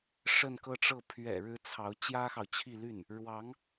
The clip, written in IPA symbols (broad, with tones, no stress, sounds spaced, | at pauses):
ʂ ə˥˧ n k ɤ˥˧ ʈ͡ʂ ɤ˥˩ pʰ ɥ ɛ̰˨˩ ɻ ɻ̩˧˥ t͡sʰ ɑ˧˥ ʊ̯ t͡ɕ j ä˥ x ɑ˨ ʊ̯ t͡ɕʰ i˥˧ l y˥˩ n | ɻ w ɑ˧˥ ŋ